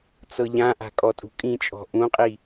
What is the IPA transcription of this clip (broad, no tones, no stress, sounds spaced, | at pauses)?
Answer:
t͡s ɤ ʎ ã ʔ a̤ kʼ ɔ tʼ ṳ kʼ ĩ t͡ʃʼ ɔ̤ ʔ ũ qʼ i